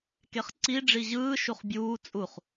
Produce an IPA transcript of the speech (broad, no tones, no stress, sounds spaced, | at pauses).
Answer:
k e χ ǀ i ɖ͡ʐ i ʑ ɯː ʃ u χ bʲ uː t͡sʼ u χ